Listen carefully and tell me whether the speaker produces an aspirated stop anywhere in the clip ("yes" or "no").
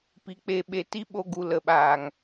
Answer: no